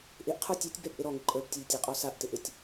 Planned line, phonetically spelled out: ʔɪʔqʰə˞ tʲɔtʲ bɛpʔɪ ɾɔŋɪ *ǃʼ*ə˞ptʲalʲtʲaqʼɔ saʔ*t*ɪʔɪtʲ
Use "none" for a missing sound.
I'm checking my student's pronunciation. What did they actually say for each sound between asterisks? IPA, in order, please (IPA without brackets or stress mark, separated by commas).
ǃʼ, t